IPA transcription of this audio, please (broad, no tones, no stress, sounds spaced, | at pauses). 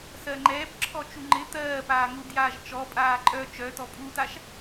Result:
s ɜ ŋ͡ǃ ɛː p ǁʰ ɔ t͡ʃ u ŋ͡ǃ ɪ t̪ ɜː p aː ŋ u d j aː ʒ t͡ʃ ɔ pʼ aː ǃʼ œ t͡ʃ œ t ɔ pʼ u t a ʃ